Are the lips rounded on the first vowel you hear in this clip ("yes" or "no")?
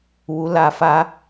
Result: yes